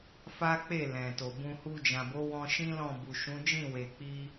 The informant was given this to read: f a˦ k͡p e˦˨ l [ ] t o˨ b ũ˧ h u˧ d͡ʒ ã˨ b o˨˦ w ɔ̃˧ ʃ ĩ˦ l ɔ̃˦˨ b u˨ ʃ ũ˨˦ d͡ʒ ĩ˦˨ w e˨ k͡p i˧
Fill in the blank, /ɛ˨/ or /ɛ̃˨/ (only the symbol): ɛ̃˨